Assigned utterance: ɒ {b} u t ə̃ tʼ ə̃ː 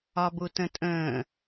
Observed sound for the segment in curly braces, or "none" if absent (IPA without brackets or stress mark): b